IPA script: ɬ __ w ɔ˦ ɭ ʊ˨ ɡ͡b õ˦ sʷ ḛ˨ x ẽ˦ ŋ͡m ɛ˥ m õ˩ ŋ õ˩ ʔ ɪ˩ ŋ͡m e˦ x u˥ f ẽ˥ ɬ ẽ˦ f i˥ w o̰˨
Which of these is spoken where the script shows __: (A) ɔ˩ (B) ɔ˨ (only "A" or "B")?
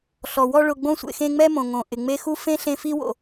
A